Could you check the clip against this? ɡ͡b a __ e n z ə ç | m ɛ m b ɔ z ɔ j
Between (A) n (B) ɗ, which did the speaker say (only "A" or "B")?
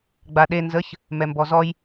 B